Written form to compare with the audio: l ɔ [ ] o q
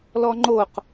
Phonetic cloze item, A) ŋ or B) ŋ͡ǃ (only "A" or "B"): B